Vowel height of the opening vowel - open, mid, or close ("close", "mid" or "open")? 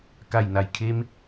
open